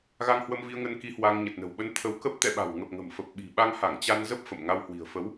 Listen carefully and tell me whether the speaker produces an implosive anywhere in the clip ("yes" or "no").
yes